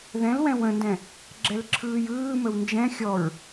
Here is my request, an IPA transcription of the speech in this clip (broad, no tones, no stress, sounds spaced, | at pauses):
ð ɛ̃ l w ɛ̃ w ə̃ n d ɛ̃ | ɡ͡ǁ ɛ l ǁʰ ɯː j ɯː m ə w n d͡ʒ ɛ̃ xʲ ɔ ɹ